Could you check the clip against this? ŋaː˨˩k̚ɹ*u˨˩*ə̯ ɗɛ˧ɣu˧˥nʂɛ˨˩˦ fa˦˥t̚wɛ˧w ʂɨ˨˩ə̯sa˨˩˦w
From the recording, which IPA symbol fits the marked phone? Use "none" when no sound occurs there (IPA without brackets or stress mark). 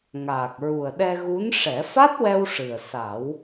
u˨˩